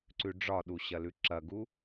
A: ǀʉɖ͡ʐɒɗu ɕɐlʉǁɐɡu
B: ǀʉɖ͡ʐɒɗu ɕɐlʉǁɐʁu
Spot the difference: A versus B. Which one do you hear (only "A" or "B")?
A